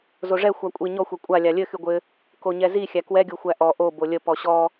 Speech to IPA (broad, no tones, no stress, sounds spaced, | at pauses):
z o ʐ ɛ xʷ a kʷʼ i ɲ ɔ xʷ ɛ kʷʼ a lʲ a lʲ ɘ x y ɡʷ ɘ | k o ɲ ɛ z i xʲ æ k w ɛ ɡʲ o xʷ æ ʔ ɔ ʔ o b o lʲ ə p ɔ ɕ ɔ